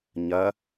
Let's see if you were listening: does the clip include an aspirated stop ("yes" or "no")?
no